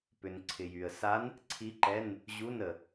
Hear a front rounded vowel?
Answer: yes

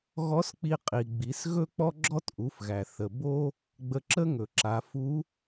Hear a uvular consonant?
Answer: yes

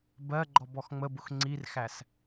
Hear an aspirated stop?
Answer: no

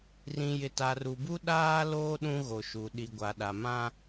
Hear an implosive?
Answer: yes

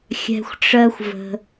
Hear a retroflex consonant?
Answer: yes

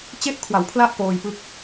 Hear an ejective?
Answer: no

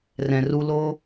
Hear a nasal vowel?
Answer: yes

